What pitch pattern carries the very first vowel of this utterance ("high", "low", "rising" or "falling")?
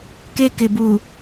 high